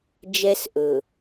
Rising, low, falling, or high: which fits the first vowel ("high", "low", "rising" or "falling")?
low